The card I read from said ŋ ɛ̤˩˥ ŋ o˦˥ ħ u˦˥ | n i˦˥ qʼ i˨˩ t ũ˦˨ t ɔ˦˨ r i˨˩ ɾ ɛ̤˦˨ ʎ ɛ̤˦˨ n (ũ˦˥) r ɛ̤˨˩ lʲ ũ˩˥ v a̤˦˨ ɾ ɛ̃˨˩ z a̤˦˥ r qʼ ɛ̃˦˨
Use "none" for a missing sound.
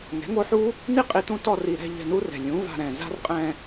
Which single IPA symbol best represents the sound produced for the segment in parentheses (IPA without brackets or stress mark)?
u˦˥